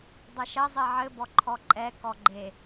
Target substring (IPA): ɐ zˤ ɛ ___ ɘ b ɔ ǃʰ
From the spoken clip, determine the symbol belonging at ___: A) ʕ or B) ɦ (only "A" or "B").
A